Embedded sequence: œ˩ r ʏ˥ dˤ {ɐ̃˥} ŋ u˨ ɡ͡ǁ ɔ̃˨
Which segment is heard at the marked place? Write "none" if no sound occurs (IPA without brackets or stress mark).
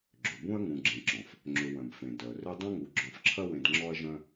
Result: ɐ̃˥